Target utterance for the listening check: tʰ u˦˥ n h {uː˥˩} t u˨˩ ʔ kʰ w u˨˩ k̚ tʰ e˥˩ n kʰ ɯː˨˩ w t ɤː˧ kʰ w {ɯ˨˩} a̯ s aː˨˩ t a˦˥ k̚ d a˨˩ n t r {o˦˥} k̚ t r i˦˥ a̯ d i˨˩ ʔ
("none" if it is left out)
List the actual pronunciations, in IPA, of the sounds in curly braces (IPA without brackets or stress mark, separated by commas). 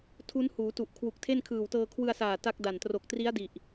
uː˩˦, ɯ˧, o˨˩